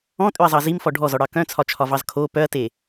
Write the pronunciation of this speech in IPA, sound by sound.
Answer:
ɔ̃ tʼ ø ɐ̯ zˤ ɑ z i m f ɔ ɖʱ ɔ z ɔ ɽ ɑ k œ̃ t͡sʰ ɒ t͡ʃʰ ɒ v ɑ z kʰ o p œ ɐ̯ t e

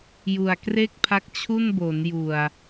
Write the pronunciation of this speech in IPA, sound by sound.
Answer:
j u˨˩ a̯ k r e˥˩ k̚ pʰ a˦˥ k̚ t͡ɕʰ u˥˩ n b o˩˦ n j u˨˩ a̯

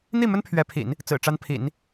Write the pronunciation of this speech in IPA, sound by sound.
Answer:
n̪ i˥˩ m ə˥ n pʰ ɥ ɛ˧˥ pʰ ḭ˨˩˦ n | t͡s ɹ̩˨˩ ʈ͡ʂ a˥ n pʰ ḭ˨˩˦ n

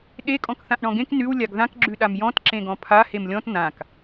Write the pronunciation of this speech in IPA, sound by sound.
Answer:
ɗ e kʼ ɔ̃ k θ ã ʔ ɳ ɔ̃ ɡ ẽ k n ʉ w lʲ a ɡ ð ã k ɡ͡ǁ ʉ ɗ a m j ɔ̃ t ǁ ẽ ɡ ɔ̃ pʰ a h e m lʲ ɔ̃ t n ã k

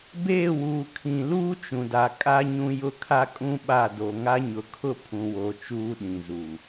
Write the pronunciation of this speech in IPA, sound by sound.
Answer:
b eː˦˨ w uː˨ kʰ ĩ˨ l uː˦ t͡ʃ ũ˨ d a˨ kʼ a˦ ɲ ũ˦ j ʊ˦ kʰ a˦ kʼ ũ˦ ɓ a˦˨ d o˨ ŋ a˦ ɲ ʊ˨ kʰ ʊ˦ pʰ ũ˨ w o˨ t͡ʃ uː˦ ɗ ĩ˨ z uː˨

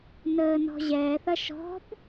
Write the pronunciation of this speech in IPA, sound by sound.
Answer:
n əː n ɔ̤ ʑ ɛː θ ɐ ʃ ɔ̤ b

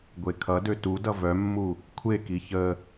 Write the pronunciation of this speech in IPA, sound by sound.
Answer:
ɡʷ e kʰ ʌ d ø t u d ʌ v œ mː u | kʷʰ e k i ç ə

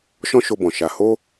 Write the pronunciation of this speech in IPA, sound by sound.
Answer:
ʃ ɔ̃˦ ʃ o˧ b ɔ̃˨ ʃ a˧ h o˦

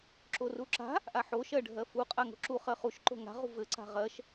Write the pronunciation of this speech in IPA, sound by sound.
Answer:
ǁ o r u ǁ a̤ | ʔ a ħ o ʃ ɜ ɖʱ ɜ f u qʼ a ŋ o̤ ǁ u χ ɜ χ u ʃ ǃ o̤ ŋ a̤ ʁ ṳ v ɘ ǀ a̤ ʁ ɜ ʃ

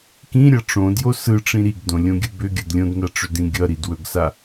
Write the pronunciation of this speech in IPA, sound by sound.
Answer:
k ĩ ɾʲ ʌ ʈ͡ʂ õ d j o s ɯ ʈ͡ʂ ĩ ɾ i ɡ d õ lʲ õ ɡʲ ɯ b ʏ ɡʲ ʌ d lʲ õ d n a ʈ͡ʂ ʏ d ĩ ɡʲ ʌ ɾ i d w ɵ ɡ s a

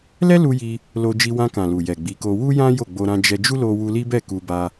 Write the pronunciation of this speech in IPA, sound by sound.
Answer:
l ɛ˦ l u˧ j i˧ | l o˧ d͡ʒ i˧ w ã˧ k ã˨ l u˨ j ɛ˨ ɡ͡b i˨˦ k o˧ w u˦ j ã˦ j o˦˨ ɡ͡b o˧ ɾ ã˧ d͡ʒ ɛ˧ d͡ʒ u˦ l o˧ w u˧ l i˦ b ɛ˦˨ k u˧ b a˧

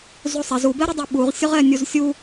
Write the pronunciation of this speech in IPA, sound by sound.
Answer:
z u sˤ ɛ z u b ɛ ɾ ə dˤ i ɓ u ʁ sʲ ʊ ʁ ɛ nʲ u z sʲ u

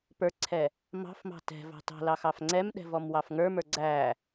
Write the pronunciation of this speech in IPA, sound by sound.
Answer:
p ə˞ ǀʰ ɛ | m ɑ̤ f m ɑ̤ t ɛ̤ v ɑ̤ t ɑ̤ l ɑ x ɑ f ŋ͡ǀ ɛ m ɗ ɛ̤ v ɔ m w ɑ f ŋ ə˞ m ə˞ ɡ͡ǀ æ

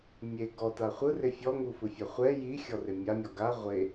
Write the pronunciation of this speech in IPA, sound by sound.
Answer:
mʲ e ɡ ɔ t a χʷ ɯ r e fʲ ɔ ŋ u f ɯ fʲ a χʷ ɛ j i xʲ ɔ r e mʲ a mʲ ɔ ɡ a ʁʷ e

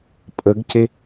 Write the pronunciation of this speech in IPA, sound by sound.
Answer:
pʼ ə ɡ c e

